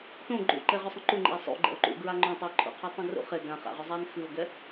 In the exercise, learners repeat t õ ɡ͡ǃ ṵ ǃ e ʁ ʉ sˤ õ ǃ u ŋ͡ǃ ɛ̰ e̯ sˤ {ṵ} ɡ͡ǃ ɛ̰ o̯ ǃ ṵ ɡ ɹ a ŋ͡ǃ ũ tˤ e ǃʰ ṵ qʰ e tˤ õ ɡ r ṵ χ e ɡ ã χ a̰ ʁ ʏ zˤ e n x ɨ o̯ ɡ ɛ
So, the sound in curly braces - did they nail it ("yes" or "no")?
yes